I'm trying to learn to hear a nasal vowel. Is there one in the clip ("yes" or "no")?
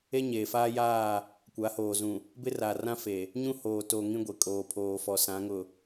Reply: yes